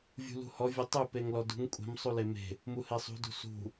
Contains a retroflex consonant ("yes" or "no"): no